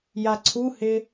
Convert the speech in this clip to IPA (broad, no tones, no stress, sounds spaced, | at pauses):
j a ǀʰ u h ɪ